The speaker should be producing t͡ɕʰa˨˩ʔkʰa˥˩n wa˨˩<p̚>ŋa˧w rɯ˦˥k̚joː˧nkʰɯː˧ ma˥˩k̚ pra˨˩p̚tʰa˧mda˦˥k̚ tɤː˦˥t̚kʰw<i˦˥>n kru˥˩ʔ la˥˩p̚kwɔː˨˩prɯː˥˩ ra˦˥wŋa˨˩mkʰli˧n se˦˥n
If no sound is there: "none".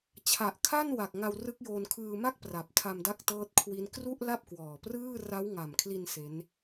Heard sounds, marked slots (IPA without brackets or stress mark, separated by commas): k̚, i˦˥